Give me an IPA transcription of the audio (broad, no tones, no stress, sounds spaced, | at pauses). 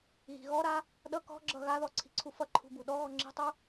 ɣ i̤ ɣ ɔ ɾ a | ɗ ʌ k ɔ̤ ɡ͡ǁ ʌ ɣ a ð ɔ ǀʰ i̤ ǀʰ u f ʌ ǃʰ ṳ b u ɗ ɔ ɣ ɔ ŋ͡ǁ i̤ tˤ u